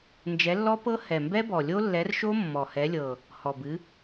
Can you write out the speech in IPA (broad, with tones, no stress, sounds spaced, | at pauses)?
n d͡ʒ ɛ˨˥ lː ɔ˦˥ p ɤ˦˥ h ɛ˨˩ m b ɛ˦˥ b ɔ˨˩ lʲ o˦˥ lː ɛ˨˥ r ʃ o˦˥ mː ɔ˨˩ h ɛ˨˥ lʲ ɤ˨˩ | h ɔ˨˩ b ɨ˨˥